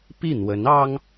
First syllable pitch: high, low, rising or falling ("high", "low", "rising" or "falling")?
falling